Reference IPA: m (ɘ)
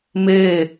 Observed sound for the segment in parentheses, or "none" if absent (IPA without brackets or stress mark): e